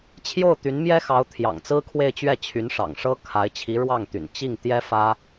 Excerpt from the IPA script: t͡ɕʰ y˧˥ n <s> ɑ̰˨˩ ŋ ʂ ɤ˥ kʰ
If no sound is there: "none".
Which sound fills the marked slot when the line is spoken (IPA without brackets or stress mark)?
ʂ